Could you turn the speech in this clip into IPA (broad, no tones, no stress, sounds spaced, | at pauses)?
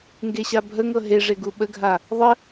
ŋ ɡ e ɕ a bʱ ə ŋ ɤ ɦ e ʐ e ɡ u ɓ ə ɡʱ a | ðˤ ə